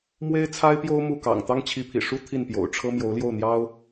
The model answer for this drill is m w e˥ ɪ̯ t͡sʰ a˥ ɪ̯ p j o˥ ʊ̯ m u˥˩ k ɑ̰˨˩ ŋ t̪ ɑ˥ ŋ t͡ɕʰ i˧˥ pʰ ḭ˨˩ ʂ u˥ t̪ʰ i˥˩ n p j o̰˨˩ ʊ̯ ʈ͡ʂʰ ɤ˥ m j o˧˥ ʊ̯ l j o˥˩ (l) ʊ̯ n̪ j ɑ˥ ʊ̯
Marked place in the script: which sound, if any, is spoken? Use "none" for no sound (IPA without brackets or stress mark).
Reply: none